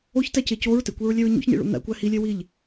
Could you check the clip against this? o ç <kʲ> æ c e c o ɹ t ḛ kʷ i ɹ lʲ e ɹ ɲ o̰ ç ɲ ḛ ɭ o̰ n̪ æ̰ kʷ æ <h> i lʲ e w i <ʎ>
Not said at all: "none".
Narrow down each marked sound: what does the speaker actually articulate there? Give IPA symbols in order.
t, h, ʎ

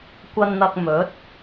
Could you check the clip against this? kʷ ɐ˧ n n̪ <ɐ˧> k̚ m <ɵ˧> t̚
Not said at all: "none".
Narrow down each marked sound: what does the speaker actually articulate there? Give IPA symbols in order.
ɐ˧, ɵ˨˥

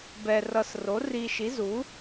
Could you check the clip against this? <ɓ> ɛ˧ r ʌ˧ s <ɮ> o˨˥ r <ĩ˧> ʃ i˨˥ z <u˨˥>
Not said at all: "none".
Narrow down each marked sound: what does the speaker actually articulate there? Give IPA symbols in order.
b, r, i˧, u˨˥

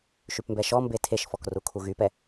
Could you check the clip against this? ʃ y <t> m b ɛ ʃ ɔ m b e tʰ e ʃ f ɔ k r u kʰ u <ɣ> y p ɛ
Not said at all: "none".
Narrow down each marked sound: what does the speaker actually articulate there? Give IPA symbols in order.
p, ɣ

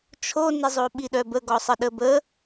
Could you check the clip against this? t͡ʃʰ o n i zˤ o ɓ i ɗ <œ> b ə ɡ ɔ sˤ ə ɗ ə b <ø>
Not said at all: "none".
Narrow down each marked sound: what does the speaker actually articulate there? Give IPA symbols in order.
œ, ə

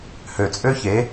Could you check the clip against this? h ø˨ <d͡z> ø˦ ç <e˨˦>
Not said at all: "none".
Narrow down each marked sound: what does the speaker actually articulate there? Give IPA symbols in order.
t͡sʼ, e˨˦

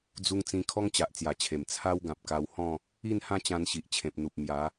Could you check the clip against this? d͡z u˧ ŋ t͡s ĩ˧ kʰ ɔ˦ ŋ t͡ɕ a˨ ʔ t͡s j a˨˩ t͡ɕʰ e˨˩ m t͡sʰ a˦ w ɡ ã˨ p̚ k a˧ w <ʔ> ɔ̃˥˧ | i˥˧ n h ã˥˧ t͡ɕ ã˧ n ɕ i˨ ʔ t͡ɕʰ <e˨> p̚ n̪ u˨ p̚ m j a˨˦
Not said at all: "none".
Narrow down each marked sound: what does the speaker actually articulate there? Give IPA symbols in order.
h, ẽ˨

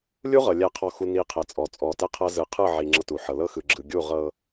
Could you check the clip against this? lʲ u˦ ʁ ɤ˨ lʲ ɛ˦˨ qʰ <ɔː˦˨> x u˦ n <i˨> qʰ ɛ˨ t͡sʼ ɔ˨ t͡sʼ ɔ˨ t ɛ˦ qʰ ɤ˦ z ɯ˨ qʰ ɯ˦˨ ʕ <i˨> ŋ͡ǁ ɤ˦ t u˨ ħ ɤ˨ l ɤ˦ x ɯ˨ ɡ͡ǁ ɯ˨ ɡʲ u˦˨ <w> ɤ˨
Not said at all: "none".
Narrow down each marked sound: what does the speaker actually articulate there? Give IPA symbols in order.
ɔ˦˨, i˦, i˨, ʁ

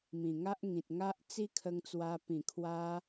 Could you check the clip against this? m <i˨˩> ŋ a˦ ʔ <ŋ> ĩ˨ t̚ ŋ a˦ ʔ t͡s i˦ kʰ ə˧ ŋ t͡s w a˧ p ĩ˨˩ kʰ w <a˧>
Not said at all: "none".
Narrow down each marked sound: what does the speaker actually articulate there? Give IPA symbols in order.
ĩ˨˩, ŋ, a˧

